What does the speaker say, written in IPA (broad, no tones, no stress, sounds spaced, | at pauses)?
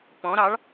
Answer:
p ɔ̃ ɾ ɑ ɭ